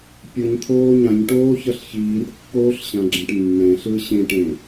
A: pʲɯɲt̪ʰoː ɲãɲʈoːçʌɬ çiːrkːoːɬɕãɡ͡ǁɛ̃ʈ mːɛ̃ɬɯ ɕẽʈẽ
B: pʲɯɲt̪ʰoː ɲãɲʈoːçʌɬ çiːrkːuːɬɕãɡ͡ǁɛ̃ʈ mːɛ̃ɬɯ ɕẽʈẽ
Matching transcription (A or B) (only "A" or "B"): A